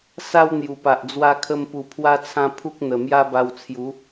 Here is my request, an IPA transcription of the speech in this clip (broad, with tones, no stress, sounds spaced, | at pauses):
s a˧ w n̪ j u˨˩ p a˨ ʔ d͡z w a˧ kʰ ə˧ m p u˨˩ pʰ w a˦ t͡sʰ ã˦ pʰ u˦ k̚ n̪ ə˨˩ m j a˦ b a˧ w t͡sʰ j u˨˦